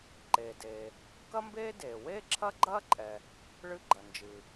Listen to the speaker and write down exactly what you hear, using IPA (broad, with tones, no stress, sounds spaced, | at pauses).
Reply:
ǃ eː˩ d eː˩ | k ɐ˥ m b eː˥ d eː˩ w eː˥ ǁʰ ɐ˥ ɡ͡ǃ ɐː˥ ǃʼ ɛ˩ | ɭ ɨ˥ ɡ͡ǃ ɐ˩ n d͡ʒ ɨ˩